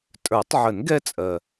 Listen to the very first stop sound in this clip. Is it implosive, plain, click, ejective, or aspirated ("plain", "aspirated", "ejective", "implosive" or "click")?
ejective